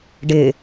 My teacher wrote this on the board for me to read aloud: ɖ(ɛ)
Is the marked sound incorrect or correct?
incorrect